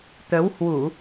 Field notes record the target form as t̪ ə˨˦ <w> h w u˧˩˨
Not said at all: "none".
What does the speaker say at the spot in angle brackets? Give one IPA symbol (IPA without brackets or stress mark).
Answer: w